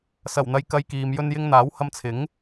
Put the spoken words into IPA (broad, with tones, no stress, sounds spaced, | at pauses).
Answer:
s ɐ˨˩ w n̪ ɐ˨ j k ɐ˧ j k iː˨ m j ɵ˧ n j ɪ˧ ŋ n̪ aː˨˥ w h ɐ˧ m t͡sʰ ɪ˨˥ ŋ